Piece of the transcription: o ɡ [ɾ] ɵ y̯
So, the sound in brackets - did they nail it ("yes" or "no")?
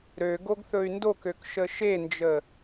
no